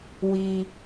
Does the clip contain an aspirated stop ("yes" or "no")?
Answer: no